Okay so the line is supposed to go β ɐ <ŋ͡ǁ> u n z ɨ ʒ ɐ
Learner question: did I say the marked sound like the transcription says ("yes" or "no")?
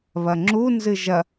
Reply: yes